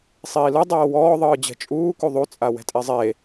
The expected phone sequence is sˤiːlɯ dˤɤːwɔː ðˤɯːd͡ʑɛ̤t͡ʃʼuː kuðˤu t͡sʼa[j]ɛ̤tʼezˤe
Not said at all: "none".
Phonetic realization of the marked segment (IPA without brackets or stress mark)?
w